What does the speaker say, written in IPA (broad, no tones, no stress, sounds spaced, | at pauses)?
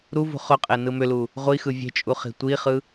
ɾ u v ṳ χ ʊ qʼ e n ɯ m ʏ l u | ʁʷ i x ɯ vʲ e̤ t͡ʃʼ u χ i̤ tʷ i χ ɯ